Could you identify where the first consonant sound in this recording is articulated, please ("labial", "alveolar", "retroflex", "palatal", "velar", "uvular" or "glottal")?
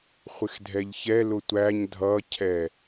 uvular